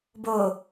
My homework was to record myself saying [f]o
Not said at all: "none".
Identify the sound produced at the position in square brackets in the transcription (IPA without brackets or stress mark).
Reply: b